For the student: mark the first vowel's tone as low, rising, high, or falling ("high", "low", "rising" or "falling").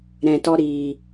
low